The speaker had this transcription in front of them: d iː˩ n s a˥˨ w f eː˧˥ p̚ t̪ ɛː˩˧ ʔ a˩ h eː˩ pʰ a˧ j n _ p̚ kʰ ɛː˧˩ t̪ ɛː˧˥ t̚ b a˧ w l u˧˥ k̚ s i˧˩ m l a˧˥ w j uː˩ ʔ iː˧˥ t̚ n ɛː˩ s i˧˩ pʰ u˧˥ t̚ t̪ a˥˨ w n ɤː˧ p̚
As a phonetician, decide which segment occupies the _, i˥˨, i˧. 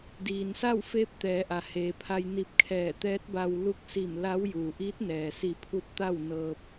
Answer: i˧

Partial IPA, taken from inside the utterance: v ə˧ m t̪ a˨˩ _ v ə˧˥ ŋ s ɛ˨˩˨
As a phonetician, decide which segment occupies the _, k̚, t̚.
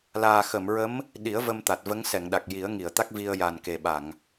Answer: t̚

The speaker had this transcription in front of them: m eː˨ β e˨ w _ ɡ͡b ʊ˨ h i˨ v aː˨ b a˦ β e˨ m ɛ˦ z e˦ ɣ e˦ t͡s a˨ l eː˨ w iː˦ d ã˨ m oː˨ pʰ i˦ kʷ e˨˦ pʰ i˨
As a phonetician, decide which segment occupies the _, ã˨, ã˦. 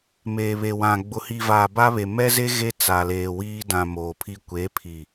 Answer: ã˨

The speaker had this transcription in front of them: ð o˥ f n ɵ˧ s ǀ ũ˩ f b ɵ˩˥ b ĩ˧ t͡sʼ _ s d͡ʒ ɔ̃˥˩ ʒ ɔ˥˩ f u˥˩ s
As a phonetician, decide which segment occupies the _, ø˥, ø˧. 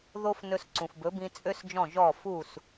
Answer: ø˥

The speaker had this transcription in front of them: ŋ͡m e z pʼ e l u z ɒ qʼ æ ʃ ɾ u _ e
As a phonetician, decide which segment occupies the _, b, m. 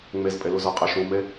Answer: m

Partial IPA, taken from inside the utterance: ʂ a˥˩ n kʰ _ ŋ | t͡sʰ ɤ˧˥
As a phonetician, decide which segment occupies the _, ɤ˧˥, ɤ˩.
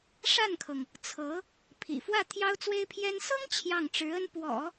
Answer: ɤ˩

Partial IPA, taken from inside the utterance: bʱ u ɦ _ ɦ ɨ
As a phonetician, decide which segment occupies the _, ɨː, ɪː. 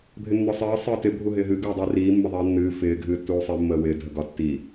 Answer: ɪː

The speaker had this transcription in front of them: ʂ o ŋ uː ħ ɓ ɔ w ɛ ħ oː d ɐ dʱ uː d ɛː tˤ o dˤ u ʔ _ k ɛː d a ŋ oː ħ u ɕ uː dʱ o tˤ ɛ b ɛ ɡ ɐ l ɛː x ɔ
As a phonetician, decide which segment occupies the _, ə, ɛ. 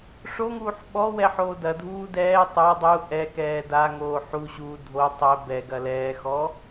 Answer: ɛ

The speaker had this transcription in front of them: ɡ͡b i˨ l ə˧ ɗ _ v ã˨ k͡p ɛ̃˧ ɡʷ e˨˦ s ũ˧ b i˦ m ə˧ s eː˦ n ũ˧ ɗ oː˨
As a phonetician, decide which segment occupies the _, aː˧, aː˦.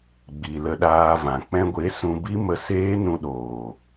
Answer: aː˧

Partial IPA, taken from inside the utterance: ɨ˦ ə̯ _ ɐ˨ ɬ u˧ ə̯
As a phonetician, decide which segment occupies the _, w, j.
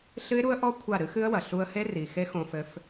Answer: w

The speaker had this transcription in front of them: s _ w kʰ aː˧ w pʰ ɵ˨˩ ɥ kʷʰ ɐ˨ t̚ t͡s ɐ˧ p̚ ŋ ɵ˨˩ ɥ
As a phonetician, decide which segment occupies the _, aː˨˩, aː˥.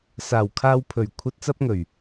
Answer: aː˨˩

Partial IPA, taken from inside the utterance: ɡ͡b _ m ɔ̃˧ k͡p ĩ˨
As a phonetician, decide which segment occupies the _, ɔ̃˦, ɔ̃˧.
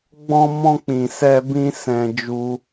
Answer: ɔ̃˧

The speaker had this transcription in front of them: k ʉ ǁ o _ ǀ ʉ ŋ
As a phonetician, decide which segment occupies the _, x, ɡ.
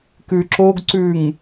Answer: ɡ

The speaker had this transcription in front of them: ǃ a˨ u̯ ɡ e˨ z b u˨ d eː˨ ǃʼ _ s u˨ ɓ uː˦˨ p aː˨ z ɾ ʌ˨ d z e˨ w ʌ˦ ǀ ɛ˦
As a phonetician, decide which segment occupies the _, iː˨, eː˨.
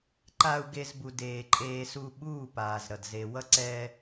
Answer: eː˨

